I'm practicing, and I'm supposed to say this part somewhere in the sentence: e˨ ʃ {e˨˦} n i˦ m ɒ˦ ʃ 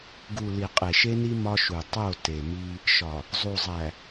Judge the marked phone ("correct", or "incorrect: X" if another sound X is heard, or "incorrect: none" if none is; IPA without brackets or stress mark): incorrect: e˦